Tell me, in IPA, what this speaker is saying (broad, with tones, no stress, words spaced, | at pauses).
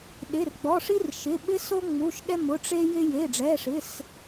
ɗɪ˩˧˩rɡ͡bɔ˩˧˩ʂi˦r ʃɪ˩˧˩ ɓɪ˦so˦ ŋ͡mu˩˧˩ʃɗɛ˦mʊ˩˧˩ ʈ͡ʂe˦jɪ˦ je˩˧˩ɖ͡ʐɛ˩˧˩ʂɪ˩˧˩s